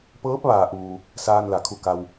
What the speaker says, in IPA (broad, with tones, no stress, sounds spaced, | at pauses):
p ɤː˧˥ p̚ ʋ aː˩ ʔ uː˩ | s aː˧ n l a˩ kʰ u˧˩ k a˩ w